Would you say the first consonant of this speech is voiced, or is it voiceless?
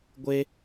voiced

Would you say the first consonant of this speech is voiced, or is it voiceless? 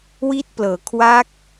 voiced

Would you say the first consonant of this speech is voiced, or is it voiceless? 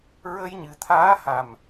voiced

